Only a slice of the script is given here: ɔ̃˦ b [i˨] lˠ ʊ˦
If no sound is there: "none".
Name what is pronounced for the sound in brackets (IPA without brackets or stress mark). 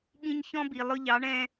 i˨